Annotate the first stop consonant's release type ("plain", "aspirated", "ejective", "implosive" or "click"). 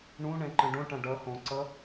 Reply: click